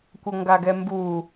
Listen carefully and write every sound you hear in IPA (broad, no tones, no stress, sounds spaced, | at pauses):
kʷ ʌ ŋ ɡ a ɡ ɛ m b u